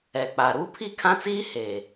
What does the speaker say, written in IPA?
ɛ˨ k͡p a˨ ɾ uː˦ pʰ i˦˨ kʰ ã˦ t͡s iː˦ h e˨

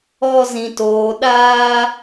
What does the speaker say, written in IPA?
ɔ˦ z ĩ˧ t oː˧ ɗ aː˦

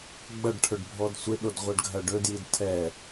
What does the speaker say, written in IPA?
ɡ͡b ɐ ɖ ʈʰ ɵ ɖ bʱ ɔ d sʷ ɪ ɗ o d ʁʷ a ɖ ɡʱ ɐ ɖ ɵ d j i d tʰ ɛ

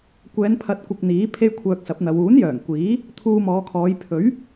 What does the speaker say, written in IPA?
kʷ ɛː˨˧ n pʰ ɐ˧ t̚ kʷ ɪ˧ k̚ n̪ iː˨˥ pʰ e˥ j kʷʰ œː˧ k̚ s ɐ˨˥ p̚ n̪ ɐ˨˧ w uː˨˥ n j œː˨˩ ŋ kʷ iː˨˥ | t̪ʰ uː˧ m ɔː˨˧ kʰ ɔː˨˧ j pʰ ɵ˨˥ ɥ

